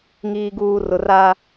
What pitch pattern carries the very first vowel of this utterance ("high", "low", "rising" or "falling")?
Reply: low